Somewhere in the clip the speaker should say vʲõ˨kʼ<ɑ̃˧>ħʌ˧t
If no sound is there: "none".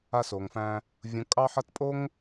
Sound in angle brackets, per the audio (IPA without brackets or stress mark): ɑ˧